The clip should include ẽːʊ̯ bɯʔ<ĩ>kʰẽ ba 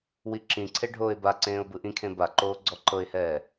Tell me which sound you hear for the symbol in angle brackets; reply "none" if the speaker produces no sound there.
ĩ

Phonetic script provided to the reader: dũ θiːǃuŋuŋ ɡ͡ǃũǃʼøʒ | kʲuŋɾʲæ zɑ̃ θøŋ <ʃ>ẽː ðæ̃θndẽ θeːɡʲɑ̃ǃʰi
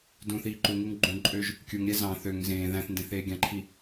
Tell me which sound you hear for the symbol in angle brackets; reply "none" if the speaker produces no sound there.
z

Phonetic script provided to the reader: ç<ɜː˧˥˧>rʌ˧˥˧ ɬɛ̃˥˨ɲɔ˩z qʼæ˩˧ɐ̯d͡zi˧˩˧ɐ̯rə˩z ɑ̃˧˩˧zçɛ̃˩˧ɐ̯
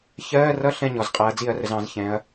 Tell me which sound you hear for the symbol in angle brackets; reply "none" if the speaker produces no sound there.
ɜː˧˥˧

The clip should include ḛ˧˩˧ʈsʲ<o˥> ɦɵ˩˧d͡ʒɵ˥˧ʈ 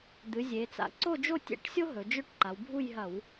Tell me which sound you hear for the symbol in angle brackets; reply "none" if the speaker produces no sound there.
o˥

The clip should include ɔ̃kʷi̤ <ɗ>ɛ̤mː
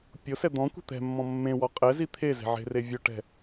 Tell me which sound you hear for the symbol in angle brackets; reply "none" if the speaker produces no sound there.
t̪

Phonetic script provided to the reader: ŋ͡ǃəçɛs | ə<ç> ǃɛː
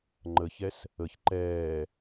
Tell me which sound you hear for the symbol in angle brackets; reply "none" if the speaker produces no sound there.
ç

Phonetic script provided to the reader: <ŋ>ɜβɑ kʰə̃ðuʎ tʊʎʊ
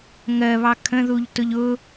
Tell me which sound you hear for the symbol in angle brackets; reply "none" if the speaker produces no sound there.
ŋ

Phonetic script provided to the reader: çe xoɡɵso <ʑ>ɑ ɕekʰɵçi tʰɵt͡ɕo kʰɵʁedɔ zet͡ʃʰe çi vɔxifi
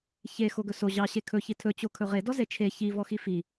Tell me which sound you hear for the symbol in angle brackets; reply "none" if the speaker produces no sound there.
ʑ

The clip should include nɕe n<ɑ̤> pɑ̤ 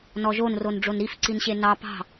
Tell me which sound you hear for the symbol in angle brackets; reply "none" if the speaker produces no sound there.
ɑ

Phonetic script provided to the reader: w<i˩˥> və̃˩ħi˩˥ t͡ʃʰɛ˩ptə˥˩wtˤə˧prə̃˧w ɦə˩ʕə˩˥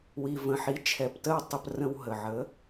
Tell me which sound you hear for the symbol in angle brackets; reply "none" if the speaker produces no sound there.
i˩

